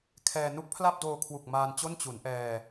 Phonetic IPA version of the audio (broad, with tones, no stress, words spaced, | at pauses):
kʰɛː˧ nu˦˥k̚pʰla˥˩p̚doː˧kʰwu˨˩k̚ maː˧nt͡ɕo˥˩n t͡ɕu˩˦nʔɛː˧